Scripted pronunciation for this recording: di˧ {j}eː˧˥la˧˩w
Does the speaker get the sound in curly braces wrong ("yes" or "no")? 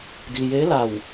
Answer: no